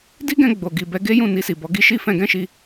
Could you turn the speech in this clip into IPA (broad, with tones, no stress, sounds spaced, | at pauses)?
d i˦ ɡ ɛ̃˧ ɡ͡b o˨ ɡ i˨ b ɛ˧ ɡ e˦ j ũ˦˨ n i˧ s i˨ b ɔ˨˦ ɡ i˦ ʃ i˦ f ɛ̃˧ ɡ ɛ̃˦ ʃ i˧